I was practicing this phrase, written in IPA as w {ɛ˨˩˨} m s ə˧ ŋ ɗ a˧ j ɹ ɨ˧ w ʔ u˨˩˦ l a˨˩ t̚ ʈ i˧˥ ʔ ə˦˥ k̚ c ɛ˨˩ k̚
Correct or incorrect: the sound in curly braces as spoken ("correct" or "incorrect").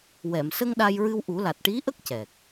correct